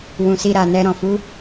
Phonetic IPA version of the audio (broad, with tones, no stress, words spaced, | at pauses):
wũ˨si˧ɾa˨nɛ˧ ɾɔ̃˨fu˨˦